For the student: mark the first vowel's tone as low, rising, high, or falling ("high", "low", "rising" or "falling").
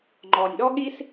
low